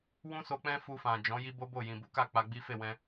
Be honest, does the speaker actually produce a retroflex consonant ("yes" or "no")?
no